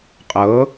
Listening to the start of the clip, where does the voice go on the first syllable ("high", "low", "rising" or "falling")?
rising